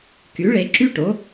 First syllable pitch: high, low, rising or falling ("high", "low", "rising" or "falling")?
rising